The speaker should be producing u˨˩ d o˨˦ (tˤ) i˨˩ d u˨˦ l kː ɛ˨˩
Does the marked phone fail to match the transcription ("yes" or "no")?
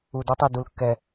no